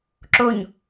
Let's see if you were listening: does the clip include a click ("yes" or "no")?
yes